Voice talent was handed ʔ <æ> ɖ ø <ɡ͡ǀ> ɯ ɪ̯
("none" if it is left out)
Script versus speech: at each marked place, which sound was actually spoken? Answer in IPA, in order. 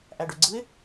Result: æ, ɡ͡ǀ

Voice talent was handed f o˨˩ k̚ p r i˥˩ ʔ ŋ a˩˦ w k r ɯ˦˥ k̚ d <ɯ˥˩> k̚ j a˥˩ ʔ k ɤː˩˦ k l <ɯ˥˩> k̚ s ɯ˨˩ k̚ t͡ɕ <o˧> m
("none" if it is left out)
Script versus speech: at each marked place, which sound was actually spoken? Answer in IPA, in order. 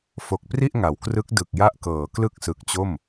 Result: ɯ˨˩, ɯ˥˩, o˥˩

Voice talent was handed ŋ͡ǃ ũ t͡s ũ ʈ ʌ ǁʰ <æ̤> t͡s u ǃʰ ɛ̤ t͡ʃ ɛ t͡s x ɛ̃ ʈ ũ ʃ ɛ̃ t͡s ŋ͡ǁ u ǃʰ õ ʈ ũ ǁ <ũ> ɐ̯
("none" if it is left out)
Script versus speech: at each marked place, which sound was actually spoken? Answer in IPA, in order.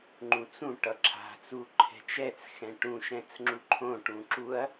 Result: a̤, u

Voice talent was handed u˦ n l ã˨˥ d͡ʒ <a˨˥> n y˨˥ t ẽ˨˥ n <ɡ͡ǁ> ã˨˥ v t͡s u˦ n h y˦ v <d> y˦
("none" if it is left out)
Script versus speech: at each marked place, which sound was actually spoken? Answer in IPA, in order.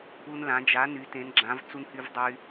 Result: a˨˥, ɡ͡ǁ, dˤ

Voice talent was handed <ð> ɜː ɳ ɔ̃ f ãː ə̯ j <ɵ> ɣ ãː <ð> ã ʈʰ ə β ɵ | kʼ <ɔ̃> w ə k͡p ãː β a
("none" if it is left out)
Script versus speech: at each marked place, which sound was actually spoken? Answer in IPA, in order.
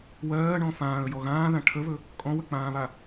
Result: w, ɔ, ð, ɔ̃

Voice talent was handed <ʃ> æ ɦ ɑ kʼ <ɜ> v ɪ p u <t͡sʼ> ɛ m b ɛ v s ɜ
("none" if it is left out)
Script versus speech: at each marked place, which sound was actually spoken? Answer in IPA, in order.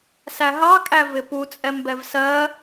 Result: s, æ, t͡sʼ

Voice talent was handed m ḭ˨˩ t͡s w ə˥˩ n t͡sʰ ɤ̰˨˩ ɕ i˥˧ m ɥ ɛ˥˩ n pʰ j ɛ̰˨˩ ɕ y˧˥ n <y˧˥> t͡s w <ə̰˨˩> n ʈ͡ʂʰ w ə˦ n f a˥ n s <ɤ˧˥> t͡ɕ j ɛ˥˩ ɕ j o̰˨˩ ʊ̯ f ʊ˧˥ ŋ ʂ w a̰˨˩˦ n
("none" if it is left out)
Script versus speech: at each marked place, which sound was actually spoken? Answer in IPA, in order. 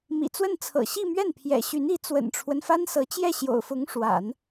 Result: i˧˥, ə̰˨˩, ɤ˧˥

